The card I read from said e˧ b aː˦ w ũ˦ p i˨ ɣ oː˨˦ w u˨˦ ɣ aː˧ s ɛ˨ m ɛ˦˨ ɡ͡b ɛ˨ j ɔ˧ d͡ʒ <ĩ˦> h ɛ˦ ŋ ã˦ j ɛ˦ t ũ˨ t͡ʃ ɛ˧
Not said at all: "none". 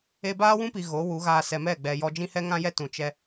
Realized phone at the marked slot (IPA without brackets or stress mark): ĩ˦